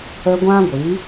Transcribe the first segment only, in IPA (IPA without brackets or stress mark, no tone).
ə